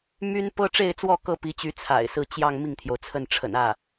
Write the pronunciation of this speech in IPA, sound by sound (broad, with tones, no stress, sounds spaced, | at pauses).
m y˥ n p ɤ˥ ʈ͡ʂ e˥˧ ɪ̯ t͡s w ɔ˥˩ k ɤ˥ p i˧˥ t͡ɕ y˧˥ t͡sʰ a̰˨˩ ɪ̯ s ɹ̩˥˧ t͡ɕ j ɑ˥˧ ŋ m i˥˩ ŋ t̪ʰ j o˩ ʊ̯ t͡sʰ ə˥˩ n ʈ͡ʂʰ ə̰˨˩ n ä˥˩